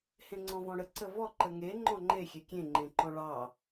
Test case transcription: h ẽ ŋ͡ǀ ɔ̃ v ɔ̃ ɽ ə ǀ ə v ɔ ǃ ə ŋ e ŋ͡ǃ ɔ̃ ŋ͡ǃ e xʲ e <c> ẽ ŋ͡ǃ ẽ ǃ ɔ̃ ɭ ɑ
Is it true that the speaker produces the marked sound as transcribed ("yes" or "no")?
no